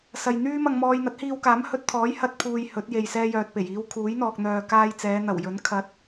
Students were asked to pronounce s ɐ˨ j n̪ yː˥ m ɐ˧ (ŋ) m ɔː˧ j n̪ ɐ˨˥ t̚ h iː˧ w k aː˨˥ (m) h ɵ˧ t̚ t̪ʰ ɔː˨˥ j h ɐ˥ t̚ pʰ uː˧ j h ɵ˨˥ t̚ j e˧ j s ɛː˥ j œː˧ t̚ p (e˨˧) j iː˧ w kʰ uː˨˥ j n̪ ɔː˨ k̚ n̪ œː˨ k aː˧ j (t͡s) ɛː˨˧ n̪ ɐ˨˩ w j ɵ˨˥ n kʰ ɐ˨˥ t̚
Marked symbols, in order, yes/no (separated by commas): yes, yes, no, yes